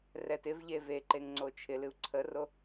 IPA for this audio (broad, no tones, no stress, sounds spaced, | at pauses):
r ɛ t ɪ v ʎ e v e ǃ e ŋ ŋ͡ǀ o t͡ʃʰ ɪ l ɨ u̯ ǀʰ ə r o